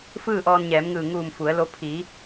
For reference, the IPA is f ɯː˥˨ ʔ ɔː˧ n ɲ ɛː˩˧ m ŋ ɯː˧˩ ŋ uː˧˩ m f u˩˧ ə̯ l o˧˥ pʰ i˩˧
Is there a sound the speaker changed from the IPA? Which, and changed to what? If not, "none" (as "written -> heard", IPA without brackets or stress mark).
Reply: none